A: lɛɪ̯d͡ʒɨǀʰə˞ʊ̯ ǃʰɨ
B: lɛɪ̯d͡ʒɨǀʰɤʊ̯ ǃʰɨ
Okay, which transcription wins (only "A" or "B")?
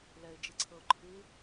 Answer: B